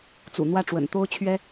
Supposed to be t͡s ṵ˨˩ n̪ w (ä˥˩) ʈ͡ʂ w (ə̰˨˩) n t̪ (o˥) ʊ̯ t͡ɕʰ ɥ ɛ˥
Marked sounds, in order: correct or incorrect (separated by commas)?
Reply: correct, correct, correct